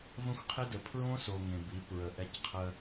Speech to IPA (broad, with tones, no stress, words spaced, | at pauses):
və̃˦xʷqʰe˦də˨ pʰɹõ˦so˨ ŋẽ˨bi˨˦ pɹə˨ʔɛ˦cqʰə˦